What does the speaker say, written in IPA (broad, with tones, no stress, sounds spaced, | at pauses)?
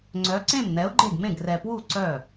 ŋ͡ǀ œ˨˥ ǀ ẽ˥˩ m n̪ ɛ˨˥ ʊ̯ ɡ͡ǃ e˥˩ ɡ m ẽ˥˩ ɡ r ɛ˨ p w u˥˩ ǀ œ˥˩